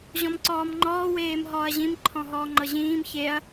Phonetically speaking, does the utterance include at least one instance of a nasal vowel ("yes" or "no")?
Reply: yes